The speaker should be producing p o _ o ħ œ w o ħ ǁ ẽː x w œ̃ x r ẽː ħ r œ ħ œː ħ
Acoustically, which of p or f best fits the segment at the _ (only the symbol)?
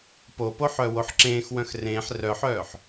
p